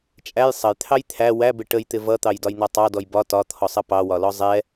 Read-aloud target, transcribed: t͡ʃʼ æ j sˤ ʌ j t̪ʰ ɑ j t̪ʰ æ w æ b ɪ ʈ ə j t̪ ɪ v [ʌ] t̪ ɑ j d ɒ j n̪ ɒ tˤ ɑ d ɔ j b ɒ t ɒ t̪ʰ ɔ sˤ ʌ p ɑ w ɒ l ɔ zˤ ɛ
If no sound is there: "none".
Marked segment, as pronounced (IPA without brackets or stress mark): ʌ